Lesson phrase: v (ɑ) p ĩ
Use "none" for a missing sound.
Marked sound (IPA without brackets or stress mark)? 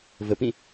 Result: ə